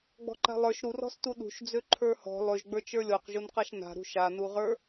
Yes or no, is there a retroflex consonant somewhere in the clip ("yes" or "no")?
no